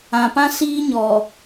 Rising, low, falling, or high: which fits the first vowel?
low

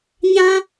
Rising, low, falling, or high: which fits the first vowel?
high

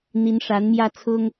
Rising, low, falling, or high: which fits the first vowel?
rising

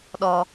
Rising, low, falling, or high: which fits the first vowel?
low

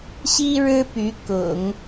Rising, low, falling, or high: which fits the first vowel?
high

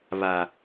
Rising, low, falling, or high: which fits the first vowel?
low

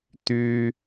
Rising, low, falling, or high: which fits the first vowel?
low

